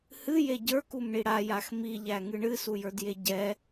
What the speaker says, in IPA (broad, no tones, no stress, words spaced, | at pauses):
hɨje ɟə˞kumɳi ɽajax miʎæŋɨ ɳɨsujə˞dje ɟɛ